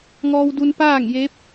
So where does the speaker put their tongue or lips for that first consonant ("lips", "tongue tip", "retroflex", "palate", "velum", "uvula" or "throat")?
velum